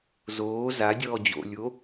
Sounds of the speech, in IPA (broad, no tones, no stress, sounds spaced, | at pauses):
z oː z a dʲ ɔː d͡ʑ o̰ lʲ o